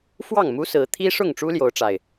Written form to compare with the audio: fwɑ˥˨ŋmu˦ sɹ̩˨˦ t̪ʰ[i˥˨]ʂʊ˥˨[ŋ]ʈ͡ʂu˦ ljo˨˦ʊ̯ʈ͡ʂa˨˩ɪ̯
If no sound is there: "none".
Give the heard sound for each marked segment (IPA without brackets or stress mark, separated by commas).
i˦, ŋ